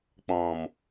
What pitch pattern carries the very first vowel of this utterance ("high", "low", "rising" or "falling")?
low